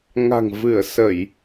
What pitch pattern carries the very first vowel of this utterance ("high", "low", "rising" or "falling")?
low